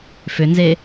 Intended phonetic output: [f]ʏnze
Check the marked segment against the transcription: correct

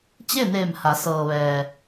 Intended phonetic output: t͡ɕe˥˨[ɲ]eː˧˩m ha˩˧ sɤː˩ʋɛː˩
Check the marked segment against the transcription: incorrect: n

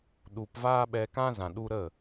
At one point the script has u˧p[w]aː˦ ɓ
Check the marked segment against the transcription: incorrect: v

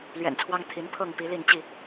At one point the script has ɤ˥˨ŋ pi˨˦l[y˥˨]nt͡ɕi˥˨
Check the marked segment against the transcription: incorrect: i˥˨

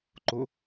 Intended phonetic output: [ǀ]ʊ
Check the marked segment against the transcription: incorrect: ǃ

